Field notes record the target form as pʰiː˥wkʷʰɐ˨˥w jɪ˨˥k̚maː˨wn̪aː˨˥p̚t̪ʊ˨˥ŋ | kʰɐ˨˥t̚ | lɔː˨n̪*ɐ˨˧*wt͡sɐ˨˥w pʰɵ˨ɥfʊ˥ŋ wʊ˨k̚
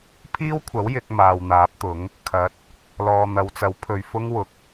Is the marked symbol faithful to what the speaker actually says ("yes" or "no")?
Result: yes